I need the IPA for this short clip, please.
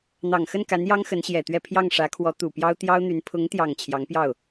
n̪ ɑ˨˩ ŋ x ə˥˩ n k a˧˥ n j ɑ˥ ŋ x ə˧˥ n ɕ j ɛ˨˩ t̪ ɥ ɛ˥˧ pʰ j ɑ˥˩ ŋ ʂ ä˧˥ kʰ w ɔ˧˥ t̪ u˨˩ p j ɑ˥ ʊ̯ t̪ j ɑ˥ ʊ̯ n̪ y˧˥ n pʰ ʊ˧˥ ŋ t̪ j ɑ˨˩ ŋ t͡ɕʰ j ɑ˧˥ ŋ p j ɑ˥˩ ʊ̯

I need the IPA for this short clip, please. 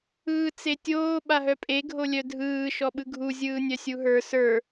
ɯː t͡s e tʲ oː ɓ a ɦ œ pʼ e ɡʱ o lʲ œ dʱ ɯː ʃ ɔ ɓ ɯ ɡʱ u zʲ ɯː nʲ œ sʲ u ɦ ə˞ s ə˞

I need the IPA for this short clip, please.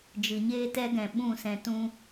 d͡ʒ ɨ˨ ɲ eː˦ t ɛ˦ ɡ ɛ̃˨ ɓ ũ˦˨ s ɛ̃˧ t ũ˦

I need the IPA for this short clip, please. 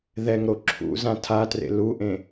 ð ɛ ŋ ɾ o ǁʰ ṵ z ã tʰ a t r ḛ l u ʔ ẽ

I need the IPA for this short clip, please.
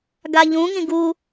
ɡ a ʎ ũ ŋ ĩ ɡ u

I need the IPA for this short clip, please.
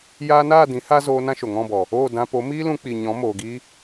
j aː˦ n aː˦˨ d ĩ˨˦ h a˦ z oː˧ n ã˦ ʃ o˨ ŋ ɔ̃˦˨ b ɔ˨ | oː˦˨ d ã˧ p o˨˦ m iː˦ l ũ˧ k͡p i˨ ɲ ɔ̃˨˦ m oː˨ ɡ iː˧

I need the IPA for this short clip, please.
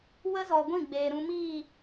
w ə˦ z ɔ˨ ɡʷ ĩ˦˨ ɡ͡b eː˨ ɾ ũ˧ m iː˦˨

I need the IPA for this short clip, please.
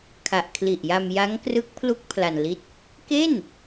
kʰ a˨˩ ʔ kʰ l i˨˩ ʔ j a˧ m j a˦˥ ŋ k r ɯ˦˥ k̚ pʰ l u˦˥ k̚ pʰ l a˧ n l i˥˩ t̚ | k e˥˩ n

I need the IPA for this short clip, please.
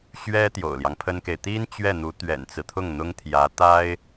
ɕ ɥ ɛ˥ t̪ j o̰˨˩ ʊ̯ l j ɑ˦ ŋ pʰ ə˥ n k e˨ ɪ̯ t̪ i˥ n t͡ɕ ɥ ɛ˥˩ n̪ u˧˥ t̪ ɥ ɛ̰˨˩ n t͡s ɹ̩˦ t̪ʰ ʊ˥˩ ŋ n̪ ʊ˥ ŋ t̪ʰ j ä˧˥ t̪ a˥ ɪ̯

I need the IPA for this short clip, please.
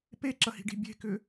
p e ǁ ɐ h i̤ ɖ i̤ bʲ e̤ k ʏ

